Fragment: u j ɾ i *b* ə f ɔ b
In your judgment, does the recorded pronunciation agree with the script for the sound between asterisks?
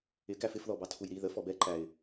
no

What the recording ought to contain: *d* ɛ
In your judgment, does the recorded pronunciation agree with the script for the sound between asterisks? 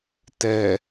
no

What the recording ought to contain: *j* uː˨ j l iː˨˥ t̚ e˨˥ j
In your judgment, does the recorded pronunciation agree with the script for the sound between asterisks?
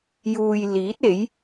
yes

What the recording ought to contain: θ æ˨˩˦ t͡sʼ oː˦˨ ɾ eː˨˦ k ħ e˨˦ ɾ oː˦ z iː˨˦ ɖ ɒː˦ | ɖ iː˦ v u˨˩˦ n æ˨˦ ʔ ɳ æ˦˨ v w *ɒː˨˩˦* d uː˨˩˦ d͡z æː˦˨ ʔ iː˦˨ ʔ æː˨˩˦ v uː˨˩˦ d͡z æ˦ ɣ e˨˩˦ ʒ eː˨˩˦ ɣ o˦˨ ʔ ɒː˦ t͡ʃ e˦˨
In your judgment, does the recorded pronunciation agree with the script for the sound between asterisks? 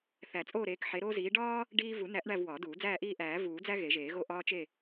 yes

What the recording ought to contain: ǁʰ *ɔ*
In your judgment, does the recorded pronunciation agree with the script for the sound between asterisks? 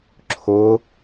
no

